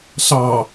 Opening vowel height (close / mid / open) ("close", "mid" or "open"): open